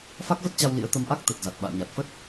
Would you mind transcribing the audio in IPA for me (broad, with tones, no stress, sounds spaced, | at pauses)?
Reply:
f a˦˥ k̚ v ə˦˥ t̚ t͡ɕ a˧ w l ḭ˧˥ ə̯ t̪ ə˧ m ʔ a˦˥ k̚ t̪ ə˨˩ t̚ z a˨˩ t̚ ɓ a̰ː˧˨ ɲ a˨˩ t̚ f ə˦˥ t̚